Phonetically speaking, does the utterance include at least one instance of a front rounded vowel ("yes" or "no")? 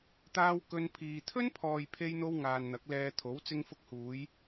no